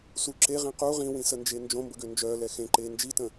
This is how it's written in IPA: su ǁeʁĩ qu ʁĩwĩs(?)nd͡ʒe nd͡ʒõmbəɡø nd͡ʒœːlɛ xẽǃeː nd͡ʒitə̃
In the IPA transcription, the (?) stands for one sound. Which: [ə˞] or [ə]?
ə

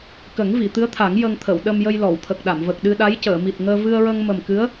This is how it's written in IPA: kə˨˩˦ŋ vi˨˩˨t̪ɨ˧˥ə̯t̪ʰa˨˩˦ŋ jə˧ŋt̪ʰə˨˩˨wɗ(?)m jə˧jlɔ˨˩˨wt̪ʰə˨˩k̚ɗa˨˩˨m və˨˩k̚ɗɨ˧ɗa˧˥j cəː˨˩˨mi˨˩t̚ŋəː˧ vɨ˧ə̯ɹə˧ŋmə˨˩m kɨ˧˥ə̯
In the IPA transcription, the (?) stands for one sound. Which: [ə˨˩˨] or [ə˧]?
ə˧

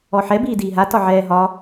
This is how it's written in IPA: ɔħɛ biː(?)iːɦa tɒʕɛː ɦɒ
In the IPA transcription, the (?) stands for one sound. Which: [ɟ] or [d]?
d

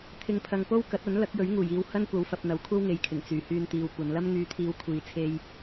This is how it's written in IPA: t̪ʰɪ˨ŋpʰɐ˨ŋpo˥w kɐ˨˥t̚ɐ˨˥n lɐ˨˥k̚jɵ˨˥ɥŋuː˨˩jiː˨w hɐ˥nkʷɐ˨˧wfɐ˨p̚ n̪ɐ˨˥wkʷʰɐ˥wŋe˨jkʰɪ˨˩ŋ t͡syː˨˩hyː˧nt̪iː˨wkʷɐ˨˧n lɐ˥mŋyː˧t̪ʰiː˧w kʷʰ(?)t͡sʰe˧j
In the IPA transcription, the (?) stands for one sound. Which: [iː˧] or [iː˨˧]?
iː˨˧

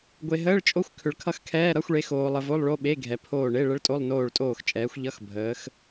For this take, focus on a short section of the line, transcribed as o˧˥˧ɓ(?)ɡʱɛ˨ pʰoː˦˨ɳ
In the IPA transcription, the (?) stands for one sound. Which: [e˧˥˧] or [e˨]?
e˧˥˧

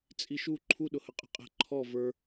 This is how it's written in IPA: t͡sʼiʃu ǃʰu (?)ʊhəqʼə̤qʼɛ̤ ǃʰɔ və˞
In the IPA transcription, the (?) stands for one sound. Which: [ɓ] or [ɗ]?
ɗ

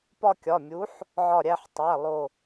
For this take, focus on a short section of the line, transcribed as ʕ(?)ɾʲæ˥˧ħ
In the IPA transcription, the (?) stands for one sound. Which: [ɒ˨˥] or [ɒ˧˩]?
ɒ˧˩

